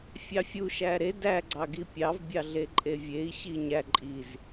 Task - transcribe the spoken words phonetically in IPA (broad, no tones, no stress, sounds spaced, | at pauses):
fʲ ɑ fʲ u ʃ æ ɾ e d æ ɡ͡ǀ ɑ ɡ i pʲ ɑ v bʲ ɑ ɮ e ǃʼ e vʲ e i̯ ɕ i ɲ æ ǃʼ i z